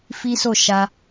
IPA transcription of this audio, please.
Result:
f i˦ s o˦˨ ʃ a˧

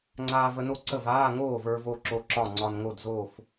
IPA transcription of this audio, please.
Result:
ŋ͡ǀ aː˧ v ə˧ n o˥˩ ǀ ə˥˩ v aː˧˥˧ ŋ oː˥˩ v ə˞˧ v o˧ ǁ o˧˥˧ ǁ ɒ˥˩ ŋ͡ǀ ɒ˧ n ŋ o˥˩ d z oː˥˩ f

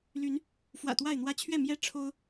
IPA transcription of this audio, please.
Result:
l y˨˦ n | f w ä̰˨˩ t̪ w a˥˨ ɪ̯ n̪ w ä˦ t͡ɕʰ ɥ ɛ˥˨ m j ɛ˦ ʈ͡ʂʰ o˦ ʊ̯

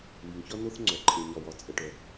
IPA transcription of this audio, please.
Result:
w i˩ ŋ ç ɒ˥ n o˥ θ ŋ͡ǀ œ˩ ǃʼ e˩ ɲ ɒ˩ w ɒ˩ t͡sʼ ə˩ ʈ œ˩

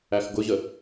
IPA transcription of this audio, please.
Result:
æ x ɡ ʊ ʑ ə

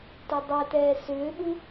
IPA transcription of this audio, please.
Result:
t e dˤ ɛ t ɛː s ʏː ɓ u

